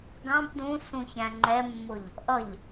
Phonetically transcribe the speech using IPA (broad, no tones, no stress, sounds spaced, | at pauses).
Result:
ɡ ɑ̃ b d ũ s ũ ç æ̃ ŋ͡ǃ ɛ mː ʊ ʎ | ʔ ʌ ʎ